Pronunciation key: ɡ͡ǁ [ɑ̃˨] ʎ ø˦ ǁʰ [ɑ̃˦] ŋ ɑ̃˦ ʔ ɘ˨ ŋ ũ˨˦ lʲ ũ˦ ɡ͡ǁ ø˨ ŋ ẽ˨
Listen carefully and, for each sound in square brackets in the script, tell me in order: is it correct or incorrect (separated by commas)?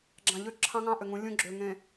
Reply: correct, correct